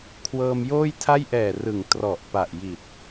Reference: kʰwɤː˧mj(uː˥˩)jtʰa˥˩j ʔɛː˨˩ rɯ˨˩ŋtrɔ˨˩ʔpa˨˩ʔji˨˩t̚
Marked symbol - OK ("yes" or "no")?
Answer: no